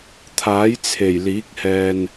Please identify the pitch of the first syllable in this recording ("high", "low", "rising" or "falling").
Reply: rising